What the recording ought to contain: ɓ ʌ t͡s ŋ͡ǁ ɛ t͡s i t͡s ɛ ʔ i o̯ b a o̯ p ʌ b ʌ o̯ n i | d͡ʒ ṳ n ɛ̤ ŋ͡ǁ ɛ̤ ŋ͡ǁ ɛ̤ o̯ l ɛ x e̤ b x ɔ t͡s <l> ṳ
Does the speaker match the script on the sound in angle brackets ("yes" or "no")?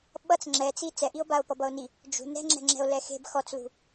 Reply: yes